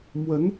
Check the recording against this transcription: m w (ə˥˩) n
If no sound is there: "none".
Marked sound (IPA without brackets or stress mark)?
ə˧˥